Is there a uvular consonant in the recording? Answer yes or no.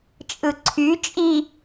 no